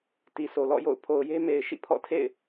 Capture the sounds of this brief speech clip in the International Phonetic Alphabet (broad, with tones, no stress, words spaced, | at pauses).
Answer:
ti˨sʰo˨lɔ̰˦˨jo̰˦˨ʊ̯ pʰo˨ʊ̯je˦ me˨ɪ̯ ʃḭ˦˨ pʰɔ̰˦˨tʰḛ˦˨ɪ̯